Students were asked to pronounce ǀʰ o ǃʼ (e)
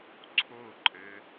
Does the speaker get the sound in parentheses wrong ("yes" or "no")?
yes